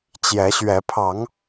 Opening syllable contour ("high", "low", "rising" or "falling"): rising